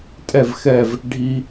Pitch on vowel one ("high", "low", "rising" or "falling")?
falling